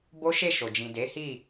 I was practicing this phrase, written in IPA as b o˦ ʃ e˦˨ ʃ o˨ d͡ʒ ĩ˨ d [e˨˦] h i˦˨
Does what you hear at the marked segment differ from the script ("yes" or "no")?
no